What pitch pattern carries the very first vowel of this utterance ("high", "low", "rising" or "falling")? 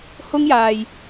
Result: high